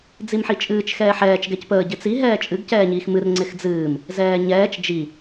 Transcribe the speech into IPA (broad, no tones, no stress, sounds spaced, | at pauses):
d͡z i m ħ i t͡ʃʼ ɨː t͡ʃ x ɛː ħ ɛː t͡ʃ ɡ ɛ c p əː ɟ ɪ t͡s i ɦ ɛː t͡ʃʼ ɨ ɡ c ɛː ɲ iː x m ɨ r ŋ͡ǀ ɪ x d͡z ɨː m | z ɛː ɲ ɛː t͡ʃ d͡ʒ i